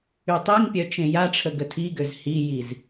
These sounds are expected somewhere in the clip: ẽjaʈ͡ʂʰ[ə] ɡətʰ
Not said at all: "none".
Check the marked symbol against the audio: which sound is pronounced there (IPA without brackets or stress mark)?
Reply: ə